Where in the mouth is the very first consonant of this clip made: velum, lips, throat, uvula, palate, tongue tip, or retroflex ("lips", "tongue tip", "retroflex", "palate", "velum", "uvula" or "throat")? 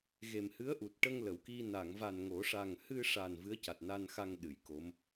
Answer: velum